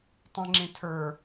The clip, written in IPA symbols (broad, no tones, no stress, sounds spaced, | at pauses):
tˤ ĩ ŋ͡ǁ ĩ tʰ ə˞